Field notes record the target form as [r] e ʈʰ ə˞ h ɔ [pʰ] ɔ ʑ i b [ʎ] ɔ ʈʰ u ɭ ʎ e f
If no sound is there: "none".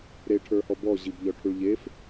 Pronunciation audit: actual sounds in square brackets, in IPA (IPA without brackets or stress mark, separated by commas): ɾ, b, ʎ